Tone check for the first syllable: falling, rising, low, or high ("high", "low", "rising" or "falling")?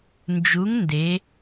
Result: rising